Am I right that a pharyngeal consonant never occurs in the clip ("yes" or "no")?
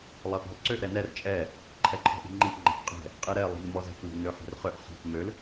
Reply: no